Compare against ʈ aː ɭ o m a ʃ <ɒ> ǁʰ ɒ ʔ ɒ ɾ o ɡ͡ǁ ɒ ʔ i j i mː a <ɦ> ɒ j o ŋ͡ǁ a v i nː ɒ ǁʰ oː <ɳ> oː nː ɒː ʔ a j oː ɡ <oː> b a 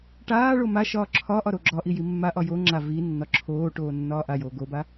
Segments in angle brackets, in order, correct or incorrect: incorrect, incorrect, incorrect, incorrect

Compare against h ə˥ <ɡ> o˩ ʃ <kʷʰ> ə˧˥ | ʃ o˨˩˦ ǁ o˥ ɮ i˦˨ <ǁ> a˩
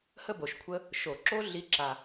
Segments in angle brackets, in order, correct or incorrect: incorrect, correct, correct

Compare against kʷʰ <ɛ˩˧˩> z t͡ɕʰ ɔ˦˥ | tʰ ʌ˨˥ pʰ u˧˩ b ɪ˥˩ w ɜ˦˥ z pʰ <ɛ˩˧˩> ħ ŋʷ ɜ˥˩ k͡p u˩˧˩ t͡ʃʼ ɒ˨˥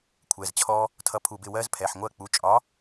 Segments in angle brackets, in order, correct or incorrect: correct, correct

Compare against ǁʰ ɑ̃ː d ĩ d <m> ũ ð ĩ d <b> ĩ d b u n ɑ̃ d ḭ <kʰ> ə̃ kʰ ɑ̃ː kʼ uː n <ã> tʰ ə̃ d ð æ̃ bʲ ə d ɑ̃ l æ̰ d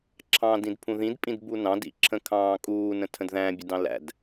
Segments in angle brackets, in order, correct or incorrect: incorrect, incorrect, incorrect, incorrect

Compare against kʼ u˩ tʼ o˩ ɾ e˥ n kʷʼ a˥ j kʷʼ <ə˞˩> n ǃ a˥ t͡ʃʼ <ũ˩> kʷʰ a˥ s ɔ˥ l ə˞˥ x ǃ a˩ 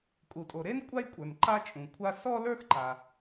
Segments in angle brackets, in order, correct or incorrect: correct, correct

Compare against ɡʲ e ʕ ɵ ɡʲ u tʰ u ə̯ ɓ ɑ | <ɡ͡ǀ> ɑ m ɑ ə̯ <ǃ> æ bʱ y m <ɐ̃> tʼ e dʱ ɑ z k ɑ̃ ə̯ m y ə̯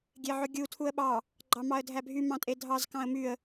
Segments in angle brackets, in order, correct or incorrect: incorrect, incorrect, incorrect

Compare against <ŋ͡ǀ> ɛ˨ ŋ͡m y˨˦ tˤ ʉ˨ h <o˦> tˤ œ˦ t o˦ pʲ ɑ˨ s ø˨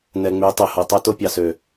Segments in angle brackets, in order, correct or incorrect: incorrect, incorrect

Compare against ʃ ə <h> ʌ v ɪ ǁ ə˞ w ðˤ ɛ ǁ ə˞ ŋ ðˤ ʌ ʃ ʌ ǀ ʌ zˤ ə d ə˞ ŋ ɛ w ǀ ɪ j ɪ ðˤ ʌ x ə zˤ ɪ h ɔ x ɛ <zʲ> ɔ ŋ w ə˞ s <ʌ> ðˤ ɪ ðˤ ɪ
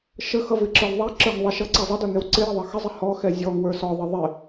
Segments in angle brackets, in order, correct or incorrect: incorrect, correct, incorrect

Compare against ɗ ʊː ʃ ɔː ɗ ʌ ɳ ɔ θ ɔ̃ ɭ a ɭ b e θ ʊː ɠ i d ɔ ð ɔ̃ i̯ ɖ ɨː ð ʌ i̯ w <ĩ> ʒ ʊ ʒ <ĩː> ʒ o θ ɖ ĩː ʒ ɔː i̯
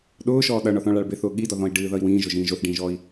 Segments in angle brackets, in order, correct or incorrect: incorrect, correct

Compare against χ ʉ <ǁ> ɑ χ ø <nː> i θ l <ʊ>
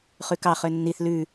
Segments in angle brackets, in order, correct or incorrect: incorrect, correct, incorrect

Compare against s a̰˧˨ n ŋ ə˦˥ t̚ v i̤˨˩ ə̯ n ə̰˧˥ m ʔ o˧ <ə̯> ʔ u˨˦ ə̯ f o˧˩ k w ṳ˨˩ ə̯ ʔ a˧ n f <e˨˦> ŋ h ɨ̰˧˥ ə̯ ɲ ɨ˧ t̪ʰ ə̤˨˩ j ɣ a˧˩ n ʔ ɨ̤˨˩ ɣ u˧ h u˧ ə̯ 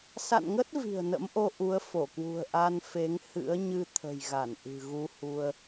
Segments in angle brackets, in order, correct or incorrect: incorrect, correct

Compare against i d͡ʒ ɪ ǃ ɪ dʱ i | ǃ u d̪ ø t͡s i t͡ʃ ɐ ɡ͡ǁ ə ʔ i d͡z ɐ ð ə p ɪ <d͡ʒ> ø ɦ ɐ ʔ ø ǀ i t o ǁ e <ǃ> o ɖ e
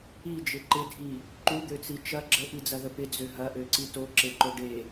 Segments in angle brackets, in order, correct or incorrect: incorrect, correct

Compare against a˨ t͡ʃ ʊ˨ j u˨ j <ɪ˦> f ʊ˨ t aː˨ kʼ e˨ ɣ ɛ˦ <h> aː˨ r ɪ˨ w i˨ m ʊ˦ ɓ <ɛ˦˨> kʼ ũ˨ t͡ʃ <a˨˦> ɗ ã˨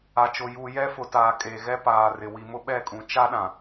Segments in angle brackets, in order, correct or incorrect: incorrect, incorrect, correct, incorrect

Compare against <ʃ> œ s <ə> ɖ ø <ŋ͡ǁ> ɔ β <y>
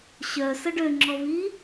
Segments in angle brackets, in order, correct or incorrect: incorrect, correct, correct, incorrect

